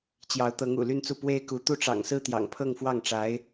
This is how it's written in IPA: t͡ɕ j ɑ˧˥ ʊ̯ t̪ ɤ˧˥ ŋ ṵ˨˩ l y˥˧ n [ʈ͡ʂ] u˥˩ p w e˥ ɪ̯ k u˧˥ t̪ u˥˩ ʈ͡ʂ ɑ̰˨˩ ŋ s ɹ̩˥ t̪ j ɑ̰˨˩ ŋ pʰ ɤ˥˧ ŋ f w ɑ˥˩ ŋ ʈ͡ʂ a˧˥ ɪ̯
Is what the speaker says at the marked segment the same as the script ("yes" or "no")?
no